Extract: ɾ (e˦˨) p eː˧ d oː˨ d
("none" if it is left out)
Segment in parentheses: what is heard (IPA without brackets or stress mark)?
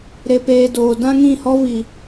e˧